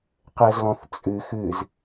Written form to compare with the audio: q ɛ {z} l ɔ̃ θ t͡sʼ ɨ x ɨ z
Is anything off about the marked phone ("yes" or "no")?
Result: no